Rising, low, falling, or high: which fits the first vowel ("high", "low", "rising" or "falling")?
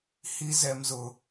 high